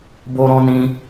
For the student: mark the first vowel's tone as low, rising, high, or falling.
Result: high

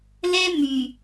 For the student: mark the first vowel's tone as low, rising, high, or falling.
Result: high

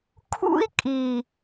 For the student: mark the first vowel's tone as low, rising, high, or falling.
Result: high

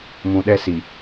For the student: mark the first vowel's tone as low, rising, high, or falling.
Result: low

